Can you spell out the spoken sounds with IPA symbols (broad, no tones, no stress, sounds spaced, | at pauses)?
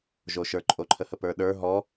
ʒ o ʃ ə˞ ǃʼ o ǃʰ ə h ə p ə˞ ɗ ə˞ ɦ ɔ